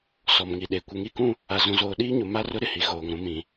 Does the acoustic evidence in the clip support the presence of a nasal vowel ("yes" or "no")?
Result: yes